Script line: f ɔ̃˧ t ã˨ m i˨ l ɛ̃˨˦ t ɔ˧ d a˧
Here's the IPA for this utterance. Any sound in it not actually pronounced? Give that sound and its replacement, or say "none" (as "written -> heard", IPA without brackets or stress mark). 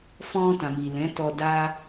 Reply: none